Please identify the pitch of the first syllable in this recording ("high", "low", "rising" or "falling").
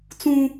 high